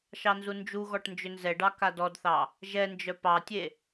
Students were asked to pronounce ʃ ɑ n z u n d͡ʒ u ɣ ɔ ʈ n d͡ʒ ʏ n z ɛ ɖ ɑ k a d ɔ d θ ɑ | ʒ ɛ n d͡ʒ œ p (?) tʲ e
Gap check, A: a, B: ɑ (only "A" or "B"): B